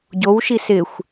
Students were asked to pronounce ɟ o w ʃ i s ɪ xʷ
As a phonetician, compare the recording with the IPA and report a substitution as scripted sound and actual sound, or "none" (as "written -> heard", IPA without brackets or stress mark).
none